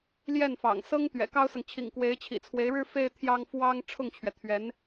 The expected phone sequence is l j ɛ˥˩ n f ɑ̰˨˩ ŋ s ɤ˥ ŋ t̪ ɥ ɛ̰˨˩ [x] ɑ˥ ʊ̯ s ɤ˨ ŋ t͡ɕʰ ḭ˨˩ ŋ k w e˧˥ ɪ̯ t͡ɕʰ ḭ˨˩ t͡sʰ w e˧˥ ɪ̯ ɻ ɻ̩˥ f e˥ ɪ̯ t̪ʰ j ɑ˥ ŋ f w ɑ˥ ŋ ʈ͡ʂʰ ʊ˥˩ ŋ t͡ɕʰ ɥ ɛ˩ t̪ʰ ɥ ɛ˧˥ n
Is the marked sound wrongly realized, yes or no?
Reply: yes